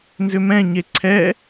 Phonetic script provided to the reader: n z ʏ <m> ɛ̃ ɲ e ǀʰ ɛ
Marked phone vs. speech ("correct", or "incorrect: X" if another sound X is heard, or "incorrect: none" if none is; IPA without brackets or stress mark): correct